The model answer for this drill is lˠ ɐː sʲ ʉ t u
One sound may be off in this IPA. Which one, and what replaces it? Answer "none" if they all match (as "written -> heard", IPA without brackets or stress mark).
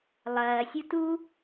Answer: ʉ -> u